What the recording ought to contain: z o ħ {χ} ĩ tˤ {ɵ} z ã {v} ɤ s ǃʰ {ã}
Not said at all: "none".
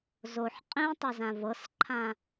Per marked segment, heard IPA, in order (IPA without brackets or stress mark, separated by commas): qʼ, ɤ, v, ã